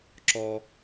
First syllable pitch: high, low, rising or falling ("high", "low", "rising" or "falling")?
high